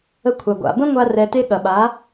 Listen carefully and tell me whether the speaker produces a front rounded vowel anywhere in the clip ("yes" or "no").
no